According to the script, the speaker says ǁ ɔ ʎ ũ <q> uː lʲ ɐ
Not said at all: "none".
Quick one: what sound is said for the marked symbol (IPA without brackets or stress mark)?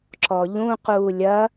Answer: q